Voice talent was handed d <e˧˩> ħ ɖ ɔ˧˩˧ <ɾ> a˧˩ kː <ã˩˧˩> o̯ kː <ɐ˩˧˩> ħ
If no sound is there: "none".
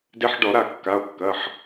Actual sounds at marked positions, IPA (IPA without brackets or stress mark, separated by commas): e˧, ɾ, a˩˧˩, ɐ˩˧˩